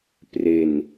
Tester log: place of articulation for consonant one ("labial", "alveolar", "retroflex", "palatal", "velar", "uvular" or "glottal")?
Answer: labial